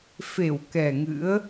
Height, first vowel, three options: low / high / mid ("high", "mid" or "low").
mid